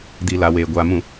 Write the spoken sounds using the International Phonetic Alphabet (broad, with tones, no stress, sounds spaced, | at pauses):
d i˨ l a˨ w eː˨ ɡʷ a˨ m ũ˨